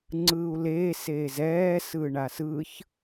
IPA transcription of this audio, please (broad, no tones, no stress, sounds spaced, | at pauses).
ŋ͡ǀ ɯː u̯ l eː s eː z ɛː s ɯː ɳ a s ɯ ç